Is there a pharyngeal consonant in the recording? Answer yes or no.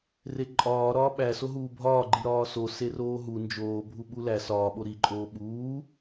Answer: no